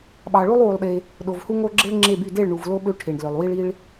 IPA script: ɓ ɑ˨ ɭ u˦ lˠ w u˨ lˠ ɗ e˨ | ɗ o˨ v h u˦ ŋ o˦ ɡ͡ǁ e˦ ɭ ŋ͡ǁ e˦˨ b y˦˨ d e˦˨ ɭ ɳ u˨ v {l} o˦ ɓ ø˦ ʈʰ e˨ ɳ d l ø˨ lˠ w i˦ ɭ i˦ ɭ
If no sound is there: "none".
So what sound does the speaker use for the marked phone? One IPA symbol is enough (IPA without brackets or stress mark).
l